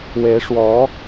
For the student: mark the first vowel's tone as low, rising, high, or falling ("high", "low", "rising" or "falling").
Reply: rising